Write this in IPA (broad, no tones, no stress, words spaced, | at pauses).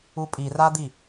upʼirad̪i